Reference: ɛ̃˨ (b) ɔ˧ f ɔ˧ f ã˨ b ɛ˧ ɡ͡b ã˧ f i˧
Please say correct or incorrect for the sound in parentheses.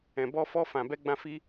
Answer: correct